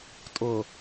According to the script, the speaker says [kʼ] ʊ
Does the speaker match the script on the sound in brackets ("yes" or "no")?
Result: no